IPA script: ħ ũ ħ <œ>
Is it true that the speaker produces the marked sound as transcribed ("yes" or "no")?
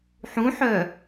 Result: yes